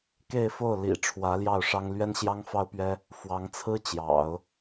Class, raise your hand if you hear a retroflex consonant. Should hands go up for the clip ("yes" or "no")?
yes